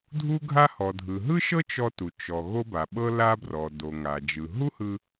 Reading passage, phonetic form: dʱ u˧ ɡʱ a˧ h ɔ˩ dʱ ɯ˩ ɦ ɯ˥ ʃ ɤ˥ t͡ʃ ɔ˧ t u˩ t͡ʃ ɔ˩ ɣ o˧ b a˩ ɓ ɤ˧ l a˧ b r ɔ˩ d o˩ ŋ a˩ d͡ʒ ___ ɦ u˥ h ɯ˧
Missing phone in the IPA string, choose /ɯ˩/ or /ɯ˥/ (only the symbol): ɯ˩